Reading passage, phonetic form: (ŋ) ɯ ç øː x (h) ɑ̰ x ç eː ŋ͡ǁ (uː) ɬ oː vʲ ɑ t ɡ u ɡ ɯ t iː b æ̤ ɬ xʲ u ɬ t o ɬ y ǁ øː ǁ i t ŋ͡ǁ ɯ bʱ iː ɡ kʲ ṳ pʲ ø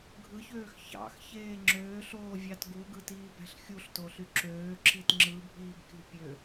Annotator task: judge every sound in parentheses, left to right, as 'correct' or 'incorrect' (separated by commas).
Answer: incorrect, incorrect, incorrect